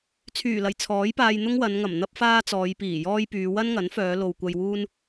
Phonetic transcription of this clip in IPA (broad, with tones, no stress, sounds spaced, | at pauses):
t͡sʰ yː˨˩ l ɐ˨˩ j t͡sʰ ɔː˨˥ j p aː˧ j n̪ ʊ˥ ŋ w ɐ˨˧ n ŋ ɐ˨˩ m n̪ ɐ˥ p̚ f aː˥ t͡s ɔː˨˧ j p iː˨˩ j ɔː˥ j p yː˨˧ w ɐ˥ n ŋ ɐ˨˥ n f œː˨˧ l o˨ w kʷ ɐ˧ j w uː˥ n